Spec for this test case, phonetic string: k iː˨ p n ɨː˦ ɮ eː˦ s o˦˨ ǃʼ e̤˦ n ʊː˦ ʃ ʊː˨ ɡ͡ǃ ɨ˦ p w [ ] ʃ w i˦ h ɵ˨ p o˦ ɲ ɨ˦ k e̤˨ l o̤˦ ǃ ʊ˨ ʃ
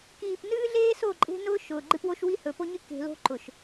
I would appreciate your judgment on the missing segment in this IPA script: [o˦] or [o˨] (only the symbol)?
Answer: o˦